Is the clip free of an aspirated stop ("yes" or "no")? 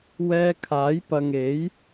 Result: no